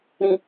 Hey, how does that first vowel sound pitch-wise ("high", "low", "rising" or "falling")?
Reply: low